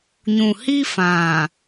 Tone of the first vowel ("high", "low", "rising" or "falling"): low